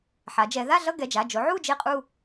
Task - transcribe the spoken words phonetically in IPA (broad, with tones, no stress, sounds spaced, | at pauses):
ħ a˨˦ d͡ʒ ɛ˨˦ ð a˥˧ ɮ ʌ˥˧ ɡ ɛ˩˧˩ d͡ʒ a˩˧˩ d͡ʒ o˨˦ ʕ u˥˧ d͡ʒ e˥˧ qʼ u˥˧